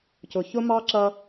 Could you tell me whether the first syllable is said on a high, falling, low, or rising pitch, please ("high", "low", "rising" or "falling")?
low